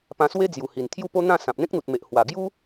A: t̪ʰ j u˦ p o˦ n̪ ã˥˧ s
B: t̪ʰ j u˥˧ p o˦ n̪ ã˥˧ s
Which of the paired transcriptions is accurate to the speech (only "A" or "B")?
B